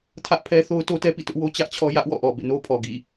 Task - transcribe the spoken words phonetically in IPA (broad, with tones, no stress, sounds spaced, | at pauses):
tʰ ä˦ ʔ pʰ ɛ˦ θ o˦ ʊ̯ t o˦ t ɛ˦ p ḭ˦˨ t ʊ˦ ʔ w o˦ t͡ɕ ä˦ ʔ t͡ɕʰ ɔ˦ j ä˦ ʔ w ɔ̰˦˨ ʔ ɔ˨ b ḛ˦˨ n o˦ pʰ ɔ˨ ɡ ḭ˦˨